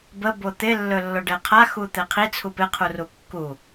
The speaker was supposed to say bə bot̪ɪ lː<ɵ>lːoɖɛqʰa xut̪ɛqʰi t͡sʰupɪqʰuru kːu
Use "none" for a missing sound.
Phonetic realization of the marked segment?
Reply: ɵ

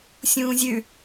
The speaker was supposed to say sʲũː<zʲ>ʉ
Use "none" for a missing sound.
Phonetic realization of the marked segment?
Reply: zʲ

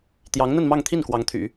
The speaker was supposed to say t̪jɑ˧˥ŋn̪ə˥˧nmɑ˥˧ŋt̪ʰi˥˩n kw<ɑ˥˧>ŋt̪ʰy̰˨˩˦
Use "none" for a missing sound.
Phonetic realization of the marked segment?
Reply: ɑ˧˥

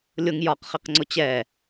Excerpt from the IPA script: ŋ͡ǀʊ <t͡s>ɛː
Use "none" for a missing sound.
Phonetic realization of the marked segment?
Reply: t͡ɕ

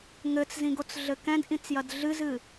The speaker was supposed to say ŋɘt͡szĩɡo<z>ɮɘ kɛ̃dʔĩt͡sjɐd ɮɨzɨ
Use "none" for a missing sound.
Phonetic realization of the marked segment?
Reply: t͡s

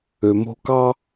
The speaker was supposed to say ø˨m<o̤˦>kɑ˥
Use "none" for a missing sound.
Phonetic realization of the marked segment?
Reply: o̤˦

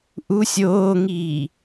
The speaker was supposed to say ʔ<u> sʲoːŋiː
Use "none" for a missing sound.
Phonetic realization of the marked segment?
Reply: u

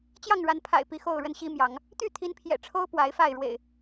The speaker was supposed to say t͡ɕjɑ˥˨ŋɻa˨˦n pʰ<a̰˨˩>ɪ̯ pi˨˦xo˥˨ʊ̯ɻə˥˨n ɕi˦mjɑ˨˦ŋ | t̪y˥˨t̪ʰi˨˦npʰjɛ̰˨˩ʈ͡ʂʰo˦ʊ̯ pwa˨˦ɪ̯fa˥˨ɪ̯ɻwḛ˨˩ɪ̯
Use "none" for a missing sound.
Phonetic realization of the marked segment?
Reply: a̰˨˩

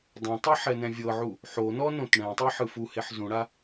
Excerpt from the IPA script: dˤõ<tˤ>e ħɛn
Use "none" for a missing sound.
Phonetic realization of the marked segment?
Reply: tˤ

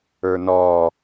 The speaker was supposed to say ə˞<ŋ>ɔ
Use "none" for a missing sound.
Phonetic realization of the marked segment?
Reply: n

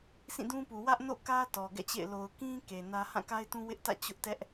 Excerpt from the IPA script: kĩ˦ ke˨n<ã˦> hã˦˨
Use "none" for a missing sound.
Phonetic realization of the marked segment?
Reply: ä˦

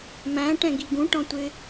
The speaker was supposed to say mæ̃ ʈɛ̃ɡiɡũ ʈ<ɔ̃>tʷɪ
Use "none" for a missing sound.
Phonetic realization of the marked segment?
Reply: ɔ̃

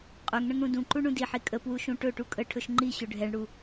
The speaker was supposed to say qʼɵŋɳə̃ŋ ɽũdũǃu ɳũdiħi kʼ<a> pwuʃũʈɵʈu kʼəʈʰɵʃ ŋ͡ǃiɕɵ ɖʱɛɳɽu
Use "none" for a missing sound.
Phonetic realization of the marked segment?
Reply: ə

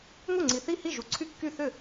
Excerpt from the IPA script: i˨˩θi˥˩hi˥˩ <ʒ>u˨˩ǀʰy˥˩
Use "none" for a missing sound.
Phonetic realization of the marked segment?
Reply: ʒ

